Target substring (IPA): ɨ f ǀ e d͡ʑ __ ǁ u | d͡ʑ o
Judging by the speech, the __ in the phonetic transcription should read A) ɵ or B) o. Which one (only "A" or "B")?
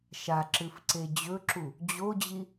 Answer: A